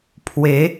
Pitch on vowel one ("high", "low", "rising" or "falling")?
rising